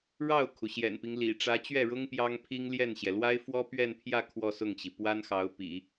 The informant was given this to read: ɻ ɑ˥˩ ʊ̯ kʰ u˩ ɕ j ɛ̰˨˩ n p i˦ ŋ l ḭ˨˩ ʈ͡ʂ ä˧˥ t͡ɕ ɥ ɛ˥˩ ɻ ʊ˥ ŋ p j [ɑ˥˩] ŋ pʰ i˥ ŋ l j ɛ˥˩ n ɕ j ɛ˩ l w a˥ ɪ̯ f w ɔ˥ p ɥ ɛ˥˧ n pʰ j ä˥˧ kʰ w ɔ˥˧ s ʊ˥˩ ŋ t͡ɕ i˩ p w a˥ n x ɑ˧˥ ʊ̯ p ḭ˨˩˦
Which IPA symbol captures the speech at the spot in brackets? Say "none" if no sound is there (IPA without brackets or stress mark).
ɑ˥